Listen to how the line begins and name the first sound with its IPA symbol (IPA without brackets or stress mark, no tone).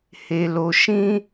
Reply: h